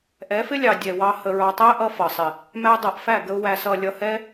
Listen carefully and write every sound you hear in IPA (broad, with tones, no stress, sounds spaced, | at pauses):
ʔ ɛ˨˦ f ɪ˦ lʲ ɑ˨ dʲ ɛ˨ w ɑ˧ h ə˨ ɹ ɑ˨ tˤ æ˦ ʔ ʌ˧ f ʌ˨ sˤ ɪ˨ | m æ˧ dˤ ʌ˨ ʔ f æ˦˨ ɡ ə˧ ʊ̯ w æ˨ s ʌ˨ lʲ ʌ˧ h ɛ˦